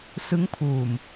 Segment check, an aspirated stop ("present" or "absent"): present